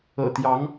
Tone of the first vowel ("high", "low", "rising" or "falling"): low